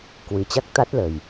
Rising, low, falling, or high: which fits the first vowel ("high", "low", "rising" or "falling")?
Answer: low